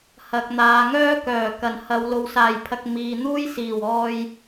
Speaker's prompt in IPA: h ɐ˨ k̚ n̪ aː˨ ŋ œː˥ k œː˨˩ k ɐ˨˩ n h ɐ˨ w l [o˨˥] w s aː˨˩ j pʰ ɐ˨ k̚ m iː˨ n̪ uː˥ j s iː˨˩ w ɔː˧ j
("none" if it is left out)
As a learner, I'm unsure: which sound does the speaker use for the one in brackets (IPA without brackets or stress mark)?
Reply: o˨